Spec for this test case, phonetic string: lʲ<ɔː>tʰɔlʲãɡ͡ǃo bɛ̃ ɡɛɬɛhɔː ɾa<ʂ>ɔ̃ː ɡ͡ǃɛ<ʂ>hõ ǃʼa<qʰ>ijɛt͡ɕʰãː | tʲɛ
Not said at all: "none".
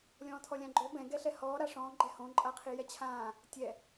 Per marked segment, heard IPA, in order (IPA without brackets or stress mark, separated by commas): ɔ̃ː, ʂ, none, qʰ